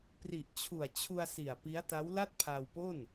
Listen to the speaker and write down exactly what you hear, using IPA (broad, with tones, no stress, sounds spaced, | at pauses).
p r i˨˩ ʔ t͡ɕʰ u˨˩ a̯ t͡ɕʰ u˧ a̯ s i˨˩ a̯ p i˦˥ a̯ t a˦˥ w l a˥˩ t̚ pʰ a˧ w p o˥˩ n